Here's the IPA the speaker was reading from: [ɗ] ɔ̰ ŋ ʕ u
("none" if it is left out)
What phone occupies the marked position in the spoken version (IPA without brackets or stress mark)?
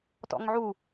t